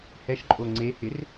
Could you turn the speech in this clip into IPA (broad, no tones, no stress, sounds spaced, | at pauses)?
h ɛ ʃ ǃʼ o ŋ͡ǀ e h ɪ r